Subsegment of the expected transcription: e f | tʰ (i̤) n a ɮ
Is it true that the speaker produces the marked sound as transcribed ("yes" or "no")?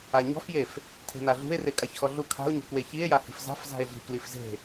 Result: no